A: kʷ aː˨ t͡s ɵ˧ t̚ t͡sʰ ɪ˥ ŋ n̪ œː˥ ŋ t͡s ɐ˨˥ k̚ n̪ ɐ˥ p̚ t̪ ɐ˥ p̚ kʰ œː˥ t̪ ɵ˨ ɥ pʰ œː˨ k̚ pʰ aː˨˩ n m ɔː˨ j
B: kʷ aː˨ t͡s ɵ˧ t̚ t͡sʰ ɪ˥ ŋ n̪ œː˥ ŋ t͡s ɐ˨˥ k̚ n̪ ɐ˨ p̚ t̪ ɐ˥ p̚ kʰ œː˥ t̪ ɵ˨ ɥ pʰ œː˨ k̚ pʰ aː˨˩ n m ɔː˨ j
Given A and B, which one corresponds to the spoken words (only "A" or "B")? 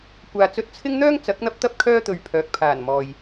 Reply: A